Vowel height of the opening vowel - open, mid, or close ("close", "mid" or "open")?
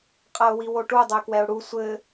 open